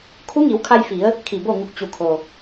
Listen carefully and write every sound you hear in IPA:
kʰ u˧˥ ŋ i˩˧ w kʰ a˧ j f i˩˧ ə̯ | kʰ i˧˩ b o˥˨ ŋ u˧ k̚ t͡ɕ u˩ kʰ o˩

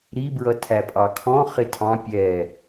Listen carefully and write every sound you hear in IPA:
ɾ i b ɹ ʌ tʰ æ pʼ ɑ kʰ ɔ̃ χ ɪ tʰ ɑ̃ pʲ ɛ

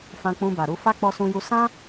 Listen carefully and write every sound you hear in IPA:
f ã˧ k͡p ũ˧ b a˨ ɾ u˧ f a˦ k͡p ɔ˧ s ũ˧ j u˧ s ã˦

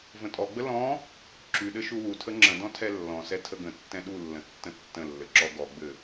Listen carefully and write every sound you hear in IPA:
v ə̃ tʼ ɔ ɡ͡b ə l ɔ̃ | ǁ y ɗ ɘ ʃ u w u tʰ ə ŋ͡ǁ ə̃ d ɔ̃ tʰ ɛ lː ɔ̃ s ɛ tʰ ə ɡ ə̃ tː ɛ̃ ɗ u lː ə̃ tː ə̃ tː ə̃ lː ɘ ǁ ɔ ɡ ɔ ɡ͡b ɘ

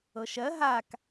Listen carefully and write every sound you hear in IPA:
ɤ ʃ ɜ ɦ a k

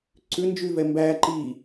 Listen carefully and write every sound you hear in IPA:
ǀ ʉ n d͡ʒ y v ɛ m b æ ǃ i

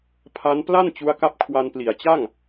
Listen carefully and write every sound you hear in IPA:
pʰ a˦˥ n p l a˥˩ n t͡ɕ u˦˥ a̯ k a˦˥ p̚ kʰ w a˧ n p l i˩˦ a̯ t͡ɕ a˥˩ ŋ

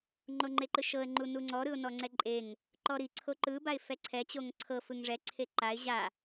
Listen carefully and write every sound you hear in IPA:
ŋ͡ǃ o ŋ͡ǃ e ǃ ɯ ʃ ɤ ə̯ ŋ͡ǃ u n u ŋ͡ǀ ɔ ɾ ɯ ʊ̯ n ɔ ŋ͡ǀ ɛ ǃʼ e ŋ | ǃ ɔ ɾ i ǀʰ o ǃ ɯ b a ɪ̯ f ɛ ǀʰ ɛ t͡ɕ o ŋ ǀʰ ɤ f ɯ ŋ ʐ ɛ ǀʰ e ǃ a ɪ̯ ʑ a

